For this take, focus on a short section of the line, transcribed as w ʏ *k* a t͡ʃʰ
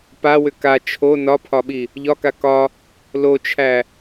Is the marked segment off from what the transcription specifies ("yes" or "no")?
no